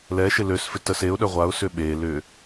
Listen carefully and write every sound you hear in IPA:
lɛʃɪ løsfɪ təs eʊ̯ ɗœʁʷaʊ̯sʏ ɓe lʏ

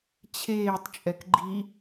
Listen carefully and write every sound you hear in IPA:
t͡ɕʰeːtˤt͡ʃʼɛk ɡ͡ǃi

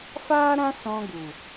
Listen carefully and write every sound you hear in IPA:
faː˦ɾã˦ sɔ̃˧ɡu˨

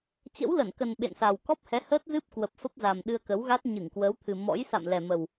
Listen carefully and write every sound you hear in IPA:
t͡ɕə̰˧˥wlə˧˩nkə˨˩n ɓḛ˧˨nsa˨˩w kɔ˦˥p̚hɛ˨˦ həː˦˥t̚zɨ˦˥p̚kwə˨˩p̚ fə˦˥p̚za˨˩m ɗɨ˧ə̯kə˨˦wɣa˦˥t̚ ɲɨ˧˩ŋkwəː˨˦wt̪ʰɨ˨˩ mɔ̰˧˥j sa̰˧˨mlɛ˨˩mə˨˩w

